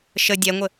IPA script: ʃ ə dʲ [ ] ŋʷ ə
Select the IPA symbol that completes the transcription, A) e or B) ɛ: B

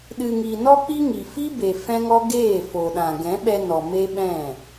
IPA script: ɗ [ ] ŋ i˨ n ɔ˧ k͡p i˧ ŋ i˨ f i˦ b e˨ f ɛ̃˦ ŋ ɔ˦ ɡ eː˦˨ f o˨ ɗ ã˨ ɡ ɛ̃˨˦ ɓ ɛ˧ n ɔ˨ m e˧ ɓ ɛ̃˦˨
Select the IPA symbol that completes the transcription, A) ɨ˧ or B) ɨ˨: B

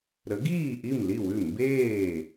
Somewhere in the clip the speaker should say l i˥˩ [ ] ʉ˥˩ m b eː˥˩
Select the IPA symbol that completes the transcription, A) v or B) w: B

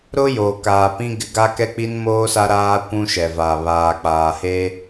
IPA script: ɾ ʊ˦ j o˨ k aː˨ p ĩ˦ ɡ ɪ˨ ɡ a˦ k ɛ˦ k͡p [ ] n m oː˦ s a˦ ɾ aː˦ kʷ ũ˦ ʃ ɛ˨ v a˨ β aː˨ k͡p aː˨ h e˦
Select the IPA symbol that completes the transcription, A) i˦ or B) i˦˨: A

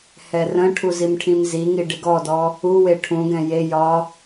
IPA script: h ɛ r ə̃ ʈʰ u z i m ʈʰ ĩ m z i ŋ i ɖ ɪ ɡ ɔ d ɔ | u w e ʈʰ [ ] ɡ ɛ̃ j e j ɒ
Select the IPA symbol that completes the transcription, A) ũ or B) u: A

